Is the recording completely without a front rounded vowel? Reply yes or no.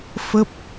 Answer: yes